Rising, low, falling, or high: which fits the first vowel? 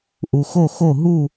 low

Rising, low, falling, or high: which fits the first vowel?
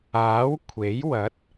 rising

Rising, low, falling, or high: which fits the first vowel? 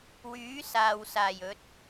rising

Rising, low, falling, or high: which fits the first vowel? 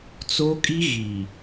high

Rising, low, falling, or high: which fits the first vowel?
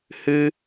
high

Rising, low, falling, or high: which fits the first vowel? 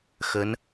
rising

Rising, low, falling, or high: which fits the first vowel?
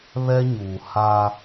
high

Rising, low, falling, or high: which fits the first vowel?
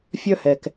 high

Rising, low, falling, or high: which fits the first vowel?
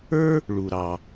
high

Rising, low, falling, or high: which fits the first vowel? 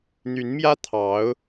rising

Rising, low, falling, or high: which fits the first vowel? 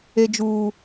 high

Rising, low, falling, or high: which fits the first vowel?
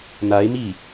rising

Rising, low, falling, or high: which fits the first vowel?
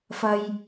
low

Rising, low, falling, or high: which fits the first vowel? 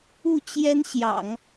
falling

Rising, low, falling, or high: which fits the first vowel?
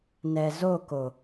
low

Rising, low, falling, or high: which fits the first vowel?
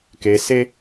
low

